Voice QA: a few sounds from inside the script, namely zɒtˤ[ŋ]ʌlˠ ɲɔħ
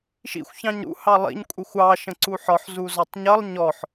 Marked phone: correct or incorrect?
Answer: incorrect